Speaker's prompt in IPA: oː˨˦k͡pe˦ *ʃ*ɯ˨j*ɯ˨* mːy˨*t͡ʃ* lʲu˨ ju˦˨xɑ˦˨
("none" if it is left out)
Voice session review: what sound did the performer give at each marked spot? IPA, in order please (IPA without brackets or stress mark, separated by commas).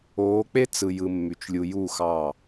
t͡s, ɯ˨, t͡ʃ